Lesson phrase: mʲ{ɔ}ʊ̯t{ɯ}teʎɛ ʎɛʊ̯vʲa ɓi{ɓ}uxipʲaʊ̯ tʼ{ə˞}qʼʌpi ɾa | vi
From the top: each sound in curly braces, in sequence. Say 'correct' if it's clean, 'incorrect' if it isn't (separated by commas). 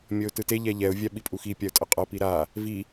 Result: incorrect, correct, incorrect, incorrect